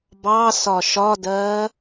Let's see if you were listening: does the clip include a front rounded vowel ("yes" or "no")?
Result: no